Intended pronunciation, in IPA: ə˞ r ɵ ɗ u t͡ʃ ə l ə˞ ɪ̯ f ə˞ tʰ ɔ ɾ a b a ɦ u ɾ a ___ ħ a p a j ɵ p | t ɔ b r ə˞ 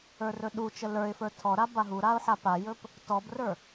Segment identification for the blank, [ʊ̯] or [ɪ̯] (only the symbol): ʊ̯